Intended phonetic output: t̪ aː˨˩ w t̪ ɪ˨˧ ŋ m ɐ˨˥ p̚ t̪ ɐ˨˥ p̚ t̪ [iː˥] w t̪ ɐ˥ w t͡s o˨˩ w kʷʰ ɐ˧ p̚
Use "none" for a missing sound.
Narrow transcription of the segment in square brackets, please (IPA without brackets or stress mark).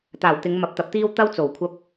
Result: iː˥